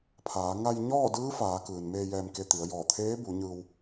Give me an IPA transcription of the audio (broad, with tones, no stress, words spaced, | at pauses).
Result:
pʰaː˩˧ ŋa˧j ɲɔː˥˨ dɯː˧˥faː˩˧ kɯː˩nmeː˧ jɛː˧mke˧t̪i˩˧ə̯ jɔː˧˩t̪ʰeː˧˥ bu˩˧ɲɯː˧w